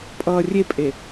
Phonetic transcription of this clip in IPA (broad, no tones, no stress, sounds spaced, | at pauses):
pʼ ʌː rʲ e pʼ e